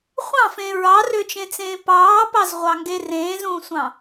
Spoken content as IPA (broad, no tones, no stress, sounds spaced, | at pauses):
χʷ ɑ̃ f ẽ ɹ ɑ r ø t͡ʃ ẽ t͡s ẽː p ɑː p ɑ z ʁʷ ɑ ŋ ɡ e r ẽː z ũː sʷ ɑ̃